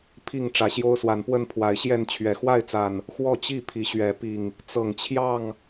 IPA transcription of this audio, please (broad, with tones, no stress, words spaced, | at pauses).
pʰi˥˨ŋ ʈ͡ʂä˨˦ɕjo˦ʊ̯swa˨˦npwə˥˨n pʰwa˨˦ɪ̯ɕjɛ˥˨n t͡ɕʰɥɛ˨˩xwa˥˨ɪ̯t͡sa˨˩n | xwɔ˥˨t͡ɕi˥˨ pʰi˨˦ɕɥɛ˨˦ pi˨˩ŋ | t͡sɤ˨˩ŋt͡ɕʰjɑ˥˨ŋ